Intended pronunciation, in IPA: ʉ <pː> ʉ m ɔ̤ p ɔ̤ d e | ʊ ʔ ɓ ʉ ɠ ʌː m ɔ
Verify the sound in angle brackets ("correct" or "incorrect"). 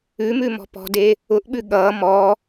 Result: incorrect